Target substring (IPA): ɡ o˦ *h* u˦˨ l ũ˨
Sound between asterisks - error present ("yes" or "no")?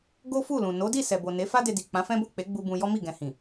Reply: yes